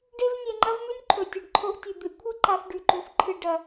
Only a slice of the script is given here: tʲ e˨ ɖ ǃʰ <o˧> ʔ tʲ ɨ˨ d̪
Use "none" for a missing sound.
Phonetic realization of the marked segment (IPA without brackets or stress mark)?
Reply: o˧